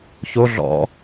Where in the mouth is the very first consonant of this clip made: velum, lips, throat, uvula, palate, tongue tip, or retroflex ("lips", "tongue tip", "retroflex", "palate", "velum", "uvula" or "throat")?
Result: palate